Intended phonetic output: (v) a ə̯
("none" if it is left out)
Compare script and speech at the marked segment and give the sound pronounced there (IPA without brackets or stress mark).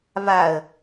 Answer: v